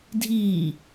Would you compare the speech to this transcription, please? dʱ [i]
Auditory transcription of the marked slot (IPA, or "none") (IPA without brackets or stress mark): iː